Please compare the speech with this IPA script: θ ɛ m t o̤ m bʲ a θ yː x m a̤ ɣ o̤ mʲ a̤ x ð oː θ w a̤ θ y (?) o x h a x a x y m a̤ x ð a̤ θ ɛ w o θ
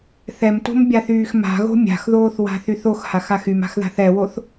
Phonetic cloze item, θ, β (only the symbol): θ